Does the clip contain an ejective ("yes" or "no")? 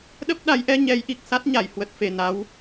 no